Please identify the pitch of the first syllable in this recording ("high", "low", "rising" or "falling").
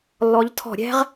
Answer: rising